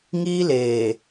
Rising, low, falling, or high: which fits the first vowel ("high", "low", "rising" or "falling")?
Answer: high